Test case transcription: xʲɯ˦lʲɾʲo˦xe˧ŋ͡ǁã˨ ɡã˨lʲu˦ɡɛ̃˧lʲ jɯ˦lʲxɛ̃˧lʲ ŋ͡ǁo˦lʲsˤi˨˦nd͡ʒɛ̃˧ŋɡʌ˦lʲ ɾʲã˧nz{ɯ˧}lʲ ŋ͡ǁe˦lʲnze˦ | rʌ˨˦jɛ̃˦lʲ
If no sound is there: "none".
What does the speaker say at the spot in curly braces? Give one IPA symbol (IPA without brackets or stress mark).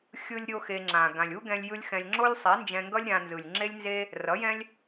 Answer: ɯ˨